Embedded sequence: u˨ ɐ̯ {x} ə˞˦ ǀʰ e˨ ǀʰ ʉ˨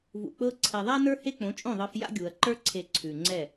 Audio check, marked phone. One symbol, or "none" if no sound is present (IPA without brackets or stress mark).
ǃ